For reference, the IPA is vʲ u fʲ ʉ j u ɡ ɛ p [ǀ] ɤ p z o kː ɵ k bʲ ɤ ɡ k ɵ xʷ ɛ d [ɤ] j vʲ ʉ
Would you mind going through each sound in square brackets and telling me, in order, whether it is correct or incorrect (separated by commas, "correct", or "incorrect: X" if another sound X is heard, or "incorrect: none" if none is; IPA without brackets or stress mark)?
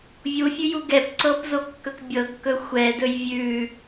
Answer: correct, incorrect: ɵ